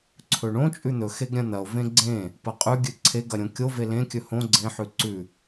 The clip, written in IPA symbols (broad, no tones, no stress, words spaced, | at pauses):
ǀʰɵɳõ t͡ʃʼʉn̪ɵxeɡɾʲɐ̃ n̪ɐo̯ vẽɡ͡ǀẽ | pɐqʼʉɡʲɨ ǀʰeɡɐɾʲõ kʲove lẽkʲɵ hõ ɡ͡ǀẽħʉ ǀʉ